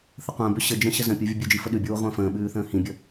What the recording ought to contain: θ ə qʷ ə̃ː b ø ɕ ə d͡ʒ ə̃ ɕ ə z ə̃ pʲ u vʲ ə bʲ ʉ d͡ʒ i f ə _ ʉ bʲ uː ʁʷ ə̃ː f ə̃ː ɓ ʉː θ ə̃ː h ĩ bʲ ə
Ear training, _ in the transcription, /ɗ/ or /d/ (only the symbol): ɗ